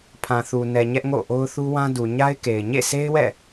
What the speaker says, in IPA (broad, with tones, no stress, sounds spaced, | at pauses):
pʰ ã˨ θ u˨ n ɛ˨ ɲ ɛ˦ ʔ ŋ o̰˦˨ ʔ o˦ ʊ̯ θ u˦ w ã˦ d u˨ ɲ a˦ ɪ̯ k e˨ ɪ̯ ɲ ḛ˦˨ sʰ e˦ ɪ̯ w ɛ̰˦˨